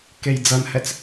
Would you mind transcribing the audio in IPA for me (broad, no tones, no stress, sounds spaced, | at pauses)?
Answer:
k e j d͡z ʌ n h ɛ t͡s